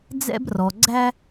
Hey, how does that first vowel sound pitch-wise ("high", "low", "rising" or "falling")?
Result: high